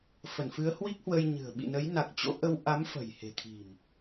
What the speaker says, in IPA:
f ə˧˩ n f ɨ˨˦ ə̯ h w i˦˥ k̚ h w ə˧ j ɲ ɨ̤˨˩ ə̯ ɓ ḭ˧˨ n ə˨˦ j n a˨˩ k̚ t͡ɕ o̰˧˥ ʔ ə˧ w ʔ a˨˦ m f ə̤˨˩ j h e̤˨˩ t̪ʰ i̤˨˩ m

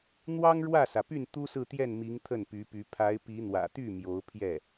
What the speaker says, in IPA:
n̪ w ɑ˥ ŋ ɻ w ä˥˩ s ä˩ p y˥˩ n t̪ u˥ s ɹ̩˥˧ t̪ j ɛ˥˩ n m i˧˥ ŋ t̪ʰ ə˥˩ n p y˧˥ p y˧˥ pʰ a˧˥ ɪ̯ p i˧˥ n̪ w ä̰˨˩ t̪ y˥˩ m j o˧˥ ʊ̯ pʰ j ɛ˥˩

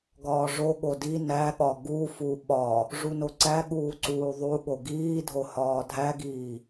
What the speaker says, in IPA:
ɡ ɒː ʐ o ɠ o d i n æ ɠ ɒ ɡ u f u ɓ ɒ | ʐ u n o ǀ æ ɠ uː ǀ uː ðˤ u ɠ o ɡ iː dʱ o h ɒː dʱ æ ɡ iː

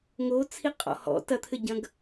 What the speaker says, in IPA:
ŋ o t͡sʰ i qʼ ɔ̰ h ɔ̰ t ɐ t̪ʰ ɘ ɟ ɐ̃ ɡ

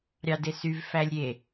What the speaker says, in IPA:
ɾʲ ɑ d e s y v f æ lʲ ɾʲ e

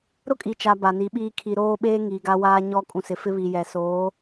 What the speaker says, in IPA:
ɾ ʊ˦ kʼ i˨ t͡ʃ a˨ b a˨ n i˨˦ ɓ iː˦ kʰ i˨ ɾ oː˦ ɓ eː˦ ŋ iː˨ ɡ a˦ w aː˦ ɲ ɔ˦ kʼ ũ˨ s ɪ˨ f ɪ˦ β i˨ j ɛ˨ s oː˨˦

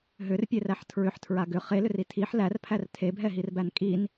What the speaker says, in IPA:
ɦ ʏ r pʲ e r æ ħ tʰ ɹ ʏ ħ tʰ ɹ a ɡ ʏ χ e l ʏ r i tʰ i ħ l æ r pʰ æ r tʰ e bʱ ɛ ɦ i r b æ n kʼ i n

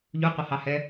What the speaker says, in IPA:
ʎ u qʷ ʌ h ɑ h ɛ

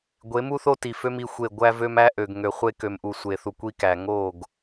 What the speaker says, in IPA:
ɡʷ e˨˦ m u˦ θ o˦ t i˨ f ø˦ m i˦ xʷ e˦˨ ɡʷ æ˦ v ø˦ m æ˦ ʔ ø˨ ɡ ŋ ø˨ χʷ e˦ k ø˨ m ʔ u˨ sʷ e˨ θ u˨ kʷ i˦ k æ˨ ŋ o˦˨ ɡ

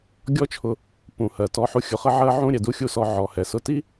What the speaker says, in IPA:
ɡʲ ɔ˦ t͡ʃʰ ʊ˧ | p ũ˨ h ɜ˨ t ɔ˧ ħ u˧ xʲ ʊ˧ χ ə˦ ʕ ɜ˦ ʕ ũ˦ ɾʲ ɛ˨ d u˦ xʲ u˦˨ s ɔ˧ ʕ ɔ˨ h ɛ˨ s ʊ˦˨ t i˦

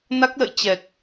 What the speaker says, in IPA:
n a˦˥ k̚ l ə̰˧˨ j t͡ɕ ɛ˨˩ k̚

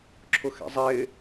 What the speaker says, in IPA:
ǁʰ ʊ x ɛ̰ zˤ ɪː

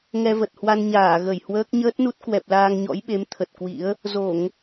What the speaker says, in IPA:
ŋ ɛ˧ v ə˨˩ t̚ h w a˧ n ɲ aː˧˩ ɣ ə˧˩ j h w əː˦˥ k̚ ɲ əː˦˥ t̚ n u˦˥ t̚ k w ɛ˨˩ p̚ l aː˧ ŋ ɲ ɔ̰˧˥ j ɓ e˨˦ m t̪ʰ ə˨˩ t̚ k w ḭ˧˥ ə̯ | z o˧˩˨ ŋ

